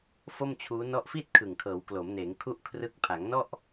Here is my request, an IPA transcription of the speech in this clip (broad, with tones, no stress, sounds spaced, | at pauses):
f o˥˩ m t͡ɕʰ uː˦˥ n ɔ˦˥ ʔ f i˥˩ t̚ kʰ ɯ˨˩ ŋ kʰ ɤː˩˦ w k l o˩˦ m n eː˩˦ ŋ kʰ u˥˩ ʔ kʰ r ɯ˦˥ k̚ pʰ a˩˦ ŋ n ɔ˥˩ ʔ